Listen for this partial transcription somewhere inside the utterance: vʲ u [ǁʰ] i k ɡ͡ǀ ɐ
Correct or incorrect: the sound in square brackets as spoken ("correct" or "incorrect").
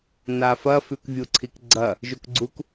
incorrect